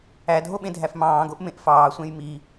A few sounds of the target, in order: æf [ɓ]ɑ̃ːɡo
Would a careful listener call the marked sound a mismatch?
yes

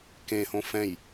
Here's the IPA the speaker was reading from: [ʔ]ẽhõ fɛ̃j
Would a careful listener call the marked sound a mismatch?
yes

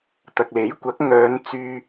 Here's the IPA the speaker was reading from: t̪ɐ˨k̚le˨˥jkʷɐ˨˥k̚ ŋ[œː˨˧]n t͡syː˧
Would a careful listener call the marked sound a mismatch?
no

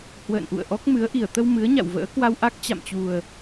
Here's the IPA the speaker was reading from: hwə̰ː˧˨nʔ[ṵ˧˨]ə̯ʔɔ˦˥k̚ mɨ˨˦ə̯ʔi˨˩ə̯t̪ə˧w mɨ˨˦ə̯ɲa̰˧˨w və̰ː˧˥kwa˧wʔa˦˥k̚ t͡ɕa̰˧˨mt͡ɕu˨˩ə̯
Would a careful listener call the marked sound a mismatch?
no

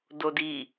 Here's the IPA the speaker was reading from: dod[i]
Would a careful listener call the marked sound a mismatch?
no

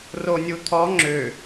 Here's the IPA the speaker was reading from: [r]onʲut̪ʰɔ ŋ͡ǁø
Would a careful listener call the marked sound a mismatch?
no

